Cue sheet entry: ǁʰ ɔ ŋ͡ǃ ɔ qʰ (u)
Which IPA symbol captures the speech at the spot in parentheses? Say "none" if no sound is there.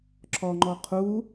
u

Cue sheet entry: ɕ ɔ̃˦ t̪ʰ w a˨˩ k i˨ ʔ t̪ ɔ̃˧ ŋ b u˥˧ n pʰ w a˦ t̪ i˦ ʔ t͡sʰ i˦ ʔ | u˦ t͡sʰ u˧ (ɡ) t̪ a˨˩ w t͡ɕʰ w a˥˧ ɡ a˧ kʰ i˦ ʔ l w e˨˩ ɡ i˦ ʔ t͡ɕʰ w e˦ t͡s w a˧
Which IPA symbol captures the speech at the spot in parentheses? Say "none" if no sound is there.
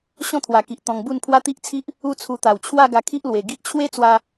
none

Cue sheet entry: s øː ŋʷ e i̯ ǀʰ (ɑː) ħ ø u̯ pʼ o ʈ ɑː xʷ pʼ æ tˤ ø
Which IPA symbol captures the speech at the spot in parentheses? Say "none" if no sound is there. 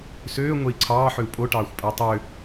ɑː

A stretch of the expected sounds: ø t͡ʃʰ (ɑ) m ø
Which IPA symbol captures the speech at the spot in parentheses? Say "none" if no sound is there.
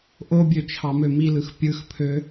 ɑ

